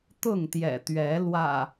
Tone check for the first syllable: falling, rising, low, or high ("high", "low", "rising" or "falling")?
falling